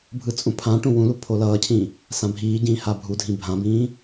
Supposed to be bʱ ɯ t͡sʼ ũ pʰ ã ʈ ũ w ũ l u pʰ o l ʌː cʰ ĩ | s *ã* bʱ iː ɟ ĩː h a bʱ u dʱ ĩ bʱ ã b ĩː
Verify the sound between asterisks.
correct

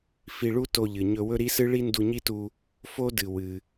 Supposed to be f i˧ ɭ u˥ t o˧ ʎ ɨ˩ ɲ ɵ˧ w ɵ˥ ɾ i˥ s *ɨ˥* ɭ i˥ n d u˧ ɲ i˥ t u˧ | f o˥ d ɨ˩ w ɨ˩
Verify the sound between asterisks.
correct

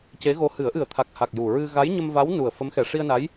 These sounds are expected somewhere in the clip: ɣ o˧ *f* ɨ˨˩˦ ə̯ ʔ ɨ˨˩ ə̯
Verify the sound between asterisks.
incorrect: h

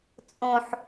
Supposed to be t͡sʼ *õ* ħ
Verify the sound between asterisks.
correct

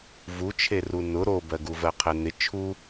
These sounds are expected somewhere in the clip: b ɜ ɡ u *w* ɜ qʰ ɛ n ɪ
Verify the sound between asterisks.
incorrect: v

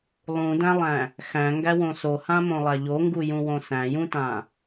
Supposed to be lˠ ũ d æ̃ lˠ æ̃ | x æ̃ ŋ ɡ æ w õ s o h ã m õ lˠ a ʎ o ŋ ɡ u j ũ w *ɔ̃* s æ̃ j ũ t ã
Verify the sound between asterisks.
incorrect: õ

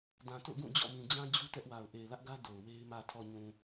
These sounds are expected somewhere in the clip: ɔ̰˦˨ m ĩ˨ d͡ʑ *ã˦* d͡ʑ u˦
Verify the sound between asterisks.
correct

